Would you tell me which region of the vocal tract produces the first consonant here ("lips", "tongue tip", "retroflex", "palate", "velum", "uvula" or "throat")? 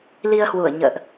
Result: tongue tip